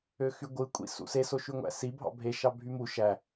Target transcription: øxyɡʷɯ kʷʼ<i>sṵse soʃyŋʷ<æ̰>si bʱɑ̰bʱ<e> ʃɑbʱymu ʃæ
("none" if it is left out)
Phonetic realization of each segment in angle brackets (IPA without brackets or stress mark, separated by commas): ḭ, æ̰, e